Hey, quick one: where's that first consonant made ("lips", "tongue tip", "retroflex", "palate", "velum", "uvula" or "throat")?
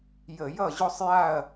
palate